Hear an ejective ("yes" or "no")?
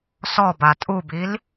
yes